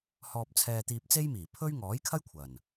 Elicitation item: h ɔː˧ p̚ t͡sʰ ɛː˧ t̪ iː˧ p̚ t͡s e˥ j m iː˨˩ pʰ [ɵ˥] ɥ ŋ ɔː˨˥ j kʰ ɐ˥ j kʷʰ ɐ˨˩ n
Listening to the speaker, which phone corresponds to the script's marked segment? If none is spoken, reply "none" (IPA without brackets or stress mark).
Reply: ɵ˥